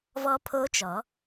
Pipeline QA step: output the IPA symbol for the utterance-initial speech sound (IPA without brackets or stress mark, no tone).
v